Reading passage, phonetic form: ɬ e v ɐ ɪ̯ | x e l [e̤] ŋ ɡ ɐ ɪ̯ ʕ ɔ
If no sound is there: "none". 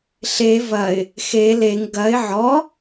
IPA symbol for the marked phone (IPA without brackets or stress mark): e